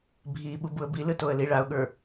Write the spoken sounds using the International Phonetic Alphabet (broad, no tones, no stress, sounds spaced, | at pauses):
bʱ i ɓ u b u ə̯ b i l ɯ t o ə̯ l i ɭ a ʊ̯ ɠ ə˞